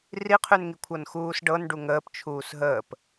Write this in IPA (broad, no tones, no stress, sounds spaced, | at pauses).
r i qʰ ʉ n ŋ i kʷʰ ɤ n x uː s ɖ ɤ n ɖ u ŋ əː p t͡ʃʰ uː s ɦ əː p